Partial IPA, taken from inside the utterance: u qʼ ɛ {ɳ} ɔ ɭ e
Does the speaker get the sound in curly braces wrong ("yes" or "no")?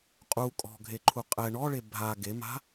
no